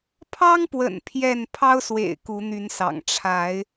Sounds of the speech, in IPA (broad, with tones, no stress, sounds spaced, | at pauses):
pʰ ɑ˦ ŋ p w ə̰˨˩ n pʰ j ɛ˥˨ n pʰ ɑ˦ ʊ̯ s w ḛ˨˩ ɪ̯ k u˨˦ n̪ y˨˦ n s ɑ̰˨˩ ŋ ʈ͡ʂʰ a˨˦ ɪ̯